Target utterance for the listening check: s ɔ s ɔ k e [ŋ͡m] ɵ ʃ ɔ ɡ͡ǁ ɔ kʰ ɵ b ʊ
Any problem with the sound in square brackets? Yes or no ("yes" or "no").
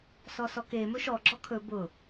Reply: yes